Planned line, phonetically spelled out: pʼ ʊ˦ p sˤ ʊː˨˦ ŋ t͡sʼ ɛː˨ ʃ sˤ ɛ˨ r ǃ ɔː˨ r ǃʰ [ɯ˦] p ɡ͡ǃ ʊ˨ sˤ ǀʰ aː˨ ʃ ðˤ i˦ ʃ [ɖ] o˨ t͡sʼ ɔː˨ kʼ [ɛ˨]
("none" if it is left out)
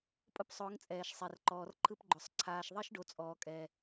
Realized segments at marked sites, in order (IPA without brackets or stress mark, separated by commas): ɯ˦, ɖ, ɛ˨